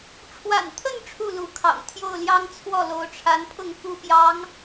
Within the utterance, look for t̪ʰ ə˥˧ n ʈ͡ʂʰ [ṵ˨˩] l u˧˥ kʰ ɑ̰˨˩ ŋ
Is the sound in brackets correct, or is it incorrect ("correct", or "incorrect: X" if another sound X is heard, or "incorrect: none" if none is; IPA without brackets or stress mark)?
incorrect: u˥˩